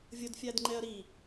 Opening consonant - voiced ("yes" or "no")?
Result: yes